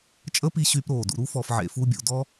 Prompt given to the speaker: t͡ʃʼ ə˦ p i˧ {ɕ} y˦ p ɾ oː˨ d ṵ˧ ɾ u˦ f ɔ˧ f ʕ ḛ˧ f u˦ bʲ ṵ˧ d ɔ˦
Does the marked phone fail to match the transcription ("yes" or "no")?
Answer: no